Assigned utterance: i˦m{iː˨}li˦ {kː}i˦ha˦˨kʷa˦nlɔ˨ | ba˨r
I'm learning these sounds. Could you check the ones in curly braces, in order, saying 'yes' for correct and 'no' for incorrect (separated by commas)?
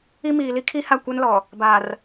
yes, no